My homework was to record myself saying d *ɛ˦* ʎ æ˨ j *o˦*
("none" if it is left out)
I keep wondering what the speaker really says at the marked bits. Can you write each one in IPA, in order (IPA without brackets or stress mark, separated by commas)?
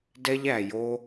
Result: ɛ˦, o˦